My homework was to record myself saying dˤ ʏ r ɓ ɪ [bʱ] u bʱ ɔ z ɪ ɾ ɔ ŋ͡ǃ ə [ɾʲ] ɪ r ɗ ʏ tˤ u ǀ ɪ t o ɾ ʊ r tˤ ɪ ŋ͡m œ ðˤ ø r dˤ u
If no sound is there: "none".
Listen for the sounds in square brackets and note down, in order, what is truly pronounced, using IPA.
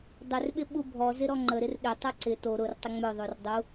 ɓ, ɾ

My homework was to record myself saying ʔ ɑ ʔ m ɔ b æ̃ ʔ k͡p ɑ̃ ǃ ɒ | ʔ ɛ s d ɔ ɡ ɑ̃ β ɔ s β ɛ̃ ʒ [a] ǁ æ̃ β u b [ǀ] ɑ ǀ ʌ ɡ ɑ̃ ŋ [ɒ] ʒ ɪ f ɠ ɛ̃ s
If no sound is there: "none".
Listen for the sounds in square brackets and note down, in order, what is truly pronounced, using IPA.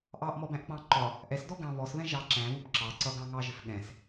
ɑ, ǁ, ɑ

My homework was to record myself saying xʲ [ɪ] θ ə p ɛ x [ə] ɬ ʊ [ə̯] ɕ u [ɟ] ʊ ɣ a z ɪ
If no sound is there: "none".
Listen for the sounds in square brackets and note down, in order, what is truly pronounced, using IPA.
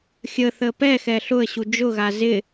ə, ɛ, ə̯, d͡ʒ

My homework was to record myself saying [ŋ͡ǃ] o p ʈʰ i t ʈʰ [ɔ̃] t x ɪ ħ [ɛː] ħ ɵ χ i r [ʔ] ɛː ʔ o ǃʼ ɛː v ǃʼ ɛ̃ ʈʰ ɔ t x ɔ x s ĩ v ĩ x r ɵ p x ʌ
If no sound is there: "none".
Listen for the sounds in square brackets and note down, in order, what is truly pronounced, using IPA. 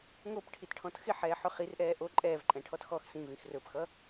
ŋ, ɔ̃, ɛː, ʔ

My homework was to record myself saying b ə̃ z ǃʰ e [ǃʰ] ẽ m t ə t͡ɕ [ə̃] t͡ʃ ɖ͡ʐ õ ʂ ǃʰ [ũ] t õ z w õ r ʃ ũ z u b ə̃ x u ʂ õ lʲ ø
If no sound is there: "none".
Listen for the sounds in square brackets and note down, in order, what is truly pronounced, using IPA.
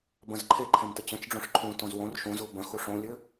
ǃʰ, ə̃, ũ

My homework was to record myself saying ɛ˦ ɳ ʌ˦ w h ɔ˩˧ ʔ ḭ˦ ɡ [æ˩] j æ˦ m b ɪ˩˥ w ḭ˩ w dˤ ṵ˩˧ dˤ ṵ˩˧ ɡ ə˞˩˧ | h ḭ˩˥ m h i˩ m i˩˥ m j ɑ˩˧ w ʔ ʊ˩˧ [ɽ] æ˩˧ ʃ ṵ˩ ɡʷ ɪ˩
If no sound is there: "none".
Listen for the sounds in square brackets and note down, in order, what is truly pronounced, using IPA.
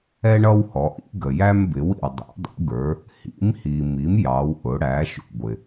ə˩, ɽ

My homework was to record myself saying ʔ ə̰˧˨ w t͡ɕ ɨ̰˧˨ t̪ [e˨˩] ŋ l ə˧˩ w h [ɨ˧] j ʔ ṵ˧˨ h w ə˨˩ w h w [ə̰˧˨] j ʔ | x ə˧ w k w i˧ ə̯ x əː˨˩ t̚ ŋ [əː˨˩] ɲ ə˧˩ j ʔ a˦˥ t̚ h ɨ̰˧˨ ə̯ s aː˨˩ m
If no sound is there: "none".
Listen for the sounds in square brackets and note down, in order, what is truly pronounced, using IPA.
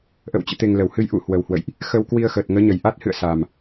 e˨˩, ɨ˧, ə̰˧˨, əː˨˦

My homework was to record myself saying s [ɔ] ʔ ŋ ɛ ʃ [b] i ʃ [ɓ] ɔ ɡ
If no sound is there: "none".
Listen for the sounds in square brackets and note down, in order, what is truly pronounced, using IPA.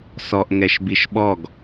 ɔ, b, ɓ

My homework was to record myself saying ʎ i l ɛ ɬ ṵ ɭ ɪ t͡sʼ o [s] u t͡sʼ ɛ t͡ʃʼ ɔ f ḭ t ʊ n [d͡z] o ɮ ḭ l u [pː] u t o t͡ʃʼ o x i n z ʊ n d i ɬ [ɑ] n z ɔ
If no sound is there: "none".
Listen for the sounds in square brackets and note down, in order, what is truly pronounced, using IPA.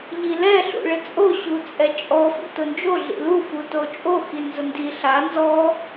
ɕ, d͡ʒ, f, a

